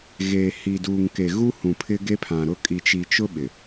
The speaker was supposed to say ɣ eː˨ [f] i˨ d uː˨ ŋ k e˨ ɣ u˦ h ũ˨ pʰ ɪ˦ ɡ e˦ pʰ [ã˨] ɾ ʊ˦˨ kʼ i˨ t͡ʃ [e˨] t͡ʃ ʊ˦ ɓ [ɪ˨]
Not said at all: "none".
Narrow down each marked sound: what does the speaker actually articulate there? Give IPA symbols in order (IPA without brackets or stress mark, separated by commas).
h, ã˨, i˨, ɪ˨